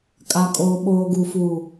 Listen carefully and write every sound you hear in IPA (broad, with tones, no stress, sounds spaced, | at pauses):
kʼ a˨ kʼ oː˨ ɓ oː˨ ɡ u˨ f u˨